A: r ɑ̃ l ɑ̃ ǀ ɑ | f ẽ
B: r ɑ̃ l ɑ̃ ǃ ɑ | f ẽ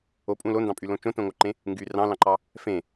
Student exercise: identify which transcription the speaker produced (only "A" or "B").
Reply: B